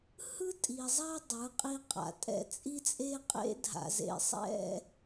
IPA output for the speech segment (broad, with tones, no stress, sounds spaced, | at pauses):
h ɯ˦ tʼ i˨ zˤ a˦ dˤ ɯ˨˦ qʼ i˦ qʼ a̰˨ tʼ ɛ̰˦ t͡sʼ i˦ t͡sʼ e˦ qʼ ḛ˦ dʱ a̰˨ z ḛ˨ sˤ ɛ̰˦˨